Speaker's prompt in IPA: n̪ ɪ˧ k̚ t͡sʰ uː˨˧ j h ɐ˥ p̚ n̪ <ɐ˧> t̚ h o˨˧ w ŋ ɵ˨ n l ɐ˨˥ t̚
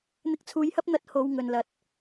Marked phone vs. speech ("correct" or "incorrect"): correct